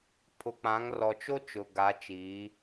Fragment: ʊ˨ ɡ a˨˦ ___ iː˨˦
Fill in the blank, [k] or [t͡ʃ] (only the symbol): t͡ʃ